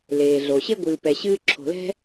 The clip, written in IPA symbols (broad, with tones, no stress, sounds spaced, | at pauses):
l eː˩ ɮ o˩ ɕ e˥ ɡʷ ɨː˨ p ɛ˨ ɕ ɨː˥ ǁʰ o̤˨ l ɛ̤˥